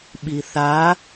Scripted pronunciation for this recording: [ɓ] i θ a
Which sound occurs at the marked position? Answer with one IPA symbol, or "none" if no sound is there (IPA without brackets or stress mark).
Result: ɓ